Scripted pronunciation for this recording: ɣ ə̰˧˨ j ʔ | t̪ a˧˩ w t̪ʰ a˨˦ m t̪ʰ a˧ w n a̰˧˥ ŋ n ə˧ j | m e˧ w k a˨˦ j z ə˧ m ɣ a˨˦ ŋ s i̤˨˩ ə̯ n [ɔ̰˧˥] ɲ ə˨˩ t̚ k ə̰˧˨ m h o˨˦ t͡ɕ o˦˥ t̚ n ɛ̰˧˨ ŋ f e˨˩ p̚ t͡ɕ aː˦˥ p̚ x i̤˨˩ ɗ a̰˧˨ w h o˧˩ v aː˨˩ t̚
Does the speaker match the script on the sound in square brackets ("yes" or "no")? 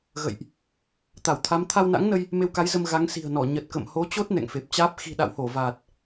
no